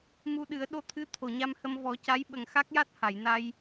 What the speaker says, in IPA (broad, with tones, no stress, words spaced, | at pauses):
mu˧ɗɨ˨˩˦ə̯ ɗo˧˥t̪ʰɨ˧˥ t̪ʰo˨˩˨ɲa˧mhə˧m vɔ˨˩˦ca˧˥j ɓə˨˩ŋxa˦˥k̚ja˦˥t̚ ha˨˩˨jna˧j